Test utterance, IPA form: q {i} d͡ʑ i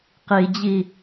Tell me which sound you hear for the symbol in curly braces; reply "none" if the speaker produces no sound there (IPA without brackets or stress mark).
i